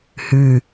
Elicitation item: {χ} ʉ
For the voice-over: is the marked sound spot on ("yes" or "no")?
no